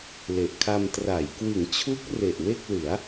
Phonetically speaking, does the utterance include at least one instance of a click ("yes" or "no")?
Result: no